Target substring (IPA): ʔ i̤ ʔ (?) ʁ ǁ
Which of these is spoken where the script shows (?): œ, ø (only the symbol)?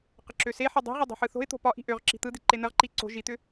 ø